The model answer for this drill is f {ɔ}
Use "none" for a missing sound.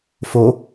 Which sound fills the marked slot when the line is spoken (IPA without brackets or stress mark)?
o